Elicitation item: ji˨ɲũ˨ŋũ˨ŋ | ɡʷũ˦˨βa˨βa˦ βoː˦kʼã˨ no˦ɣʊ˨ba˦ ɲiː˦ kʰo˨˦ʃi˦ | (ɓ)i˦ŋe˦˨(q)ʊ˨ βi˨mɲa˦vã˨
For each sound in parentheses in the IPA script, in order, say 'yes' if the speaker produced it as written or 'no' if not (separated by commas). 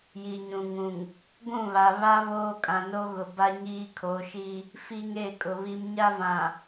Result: no, no